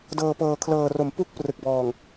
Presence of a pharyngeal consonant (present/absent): absent